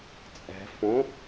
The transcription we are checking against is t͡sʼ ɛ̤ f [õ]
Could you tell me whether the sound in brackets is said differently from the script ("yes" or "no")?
no